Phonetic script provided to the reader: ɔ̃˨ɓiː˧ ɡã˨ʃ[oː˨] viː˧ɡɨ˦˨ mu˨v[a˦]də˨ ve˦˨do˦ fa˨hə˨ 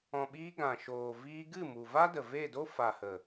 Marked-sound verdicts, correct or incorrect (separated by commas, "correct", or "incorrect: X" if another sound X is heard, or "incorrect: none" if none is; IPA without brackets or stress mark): correct, correct